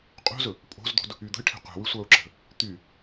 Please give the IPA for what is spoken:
qʼo̤zɵ | pʼo̤zd̪o̤d | yd̪ə̤ɪ̯ʈʰe̤ qʷɛ̤wysʷaʊ̯ǁə̤ | t̪y

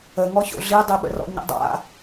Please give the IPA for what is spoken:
ə ŋɔço̰ɮidˤi ɓə̰rɔ̰ɲə̰dˤa̰

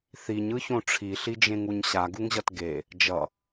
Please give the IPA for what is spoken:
θiɲɯçõ ʈ͡ʂʰiɬid͡ʒẽŋuɲ ɕaɡuŋʑʌt ɡe | d͡ʒʌ

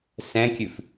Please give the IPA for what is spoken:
sɛ̃kʲʉf

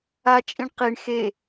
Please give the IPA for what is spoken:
at͡ʃʼĩɳ qiɳ xe

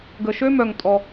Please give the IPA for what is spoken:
ɡə˩ʃø˥mœ˩ŋ tʼɔ˩

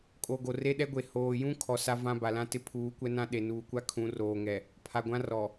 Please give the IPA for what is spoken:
kʼo˨ ɡo˨re˦ɗɛ˦ɡʷe˨ hoː˨jũ˦ kʰɔ˨ sa˦vã˦ba˨lã˦ tɪ˦pʰuː˨˦kʷɛ˦nã˦ ɗe˨nuː˨kʷa˦ kʰũ˨˦roː˨ŋɛ˨ | pʰa˨ɡʷã˦rɔ˨

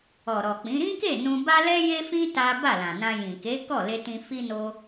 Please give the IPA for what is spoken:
ɔ˨ɾɔ˨k͡pĩ˨˦ ɾĩ˦ke˦˨ nũ˧ ba˦lɛ˦je˦fĩ˦ ta˦ ba˦˨lã˨nã˧ jĩ˨ke˨˦ kɔ˦˨le˧tĩ˧ fi˦no˦

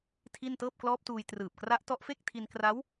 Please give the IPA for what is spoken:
tʰi˥˩n tɤː˥˩p̚klɔː˦˥p̚tuː˧j trɯː˨˩p̚kra˦˥ʔtɔ˦˥ʔfe˥˩k̚ tʰi˧nkra˦˥w

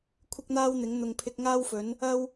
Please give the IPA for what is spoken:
kʷʰɪ˥k̚n̪aː˥wn̪ɪ˨˥ŋ n̪ʊ˨ŋpʰɪ˧k̚ŋaː˥wfɵ˨˥n | ɐ˥w

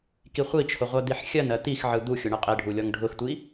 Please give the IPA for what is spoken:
kiχʷit͡ʃʰʊ ʁʷɜd̪iħxʲɜnɜ t̪ixʕɯ d̪uxʲʊ ɳɯqʼeɖʱu lʲɔŋɖʱʊxtʷi

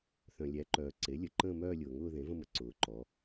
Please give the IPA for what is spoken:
θœ̃˩lʲæ˩˥ǃœː˩ ǀe˩˥lʲə˩ ǃə̃ː˥˧mœː˥˧lʲʊː˩ŋʊː˥˧ ðẽ˩˥və̃˥˧mə˩˥ ǀʊː˩ǃɔ˩˧

